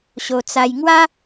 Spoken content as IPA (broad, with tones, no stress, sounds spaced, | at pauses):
ɕ o˧ t͡s a˧ j ŋ w a˦